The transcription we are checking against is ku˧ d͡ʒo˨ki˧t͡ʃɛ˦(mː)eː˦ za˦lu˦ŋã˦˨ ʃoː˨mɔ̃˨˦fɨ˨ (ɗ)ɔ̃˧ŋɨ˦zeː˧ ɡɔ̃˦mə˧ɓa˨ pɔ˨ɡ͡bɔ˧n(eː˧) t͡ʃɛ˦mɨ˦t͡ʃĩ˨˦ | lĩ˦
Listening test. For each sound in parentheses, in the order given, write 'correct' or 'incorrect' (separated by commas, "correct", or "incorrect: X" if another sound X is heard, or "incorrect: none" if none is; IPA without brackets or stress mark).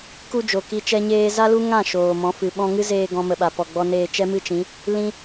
incorrect: ɲ, incorrect: ɓ, correct